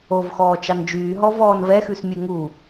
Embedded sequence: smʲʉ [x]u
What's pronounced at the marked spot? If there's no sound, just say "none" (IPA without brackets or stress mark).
ŋ